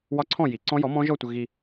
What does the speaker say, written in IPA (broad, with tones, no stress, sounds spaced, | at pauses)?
w ɒ˦˥ ǀʰ ɔ̃˥˨ j i˩˥ ǀ ɔ̃˦˥ j ɔ˩˥ m ɔ̃˦˥ ʒ ɔ˥˨ tʷ ə˧ ɣ i˧